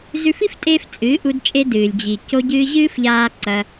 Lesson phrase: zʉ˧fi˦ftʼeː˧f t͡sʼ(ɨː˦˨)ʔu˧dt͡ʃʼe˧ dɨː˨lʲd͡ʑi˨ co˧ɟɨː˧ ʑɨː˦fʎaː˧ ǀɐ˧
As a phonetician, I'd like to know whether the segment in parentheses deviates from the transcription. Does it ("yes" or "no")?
yes